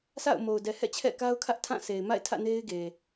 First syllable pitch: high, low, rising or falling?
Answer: falling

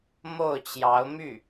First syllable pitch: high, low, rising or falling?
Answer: falling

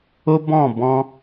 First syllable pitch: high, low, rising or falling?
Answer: high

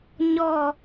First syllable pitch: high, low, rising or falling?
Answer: falling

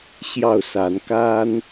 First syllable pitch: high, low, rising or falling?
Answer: falling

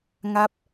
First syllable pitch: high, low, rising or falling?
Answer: falling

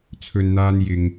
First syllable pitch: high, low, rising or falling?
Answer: low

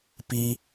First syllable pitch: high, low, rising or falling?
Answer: high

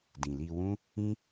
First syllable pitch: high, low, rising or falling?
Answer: low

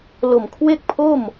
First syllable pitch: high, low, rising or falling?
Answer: low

